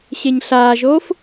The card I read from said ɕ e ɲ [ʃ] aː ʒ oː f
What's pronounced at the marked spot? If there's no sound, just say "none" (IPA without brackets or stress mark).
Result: ɬ